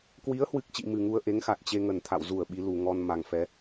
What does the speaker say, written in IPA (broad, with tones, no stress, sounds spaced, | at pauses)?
k w i˨˦ ə̯ h w ɨ˨˩ k̚ t͡ɕ ḭ˧˨ m ɨ˨˩ ŋ u˧ ə̯ ʔ e˨˦ ŋ x a˨˩ t̚ t͡ɕ e˧ ŋ ə˧˩ n t̪ʰ a̰˧˨ w z u˧˩ ə̯ ɓ i˨˦ l u˨˩ ŋ ɔ˧ n m a˨˩ ŋ f ɛ˨˦